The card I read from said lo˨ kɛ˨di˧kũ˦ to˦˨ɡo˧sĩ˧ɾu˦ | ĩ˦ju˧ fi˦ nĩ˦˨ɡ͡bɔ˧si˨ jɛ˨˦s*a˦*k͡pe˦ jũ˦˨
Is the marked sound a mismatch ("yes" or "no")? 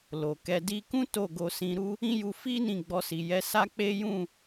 no